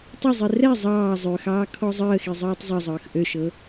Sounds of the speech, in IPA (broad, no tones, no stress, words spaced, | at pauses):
tˤɤzˤi rɛ zˤɑː zˤøxɑː kʰɔzˤəːxi zˤɤːtˤzˤɤzˤɤːx ʔøʃɤ